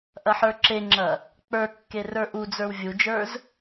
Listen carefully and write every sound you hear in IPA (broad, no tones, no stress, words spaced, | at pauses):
ʔɐħə˞ǁeŋ͡ǁɐ | k͡pə˞kːe rə˞ʔud͡zə˞w vʲud͡ʒə˞z